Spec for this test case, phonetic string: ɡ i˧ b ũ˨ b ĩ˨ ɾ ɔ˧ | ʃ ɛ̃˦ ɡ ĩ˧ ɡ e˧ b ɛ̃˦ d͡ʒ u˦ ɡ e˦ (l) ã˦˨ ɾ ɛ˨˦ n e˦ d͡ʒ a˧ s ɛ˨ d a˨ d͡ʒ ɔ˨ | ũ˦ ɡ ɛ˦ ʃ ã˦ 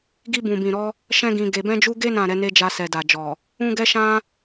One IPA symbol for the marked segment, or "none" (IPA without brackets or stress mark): n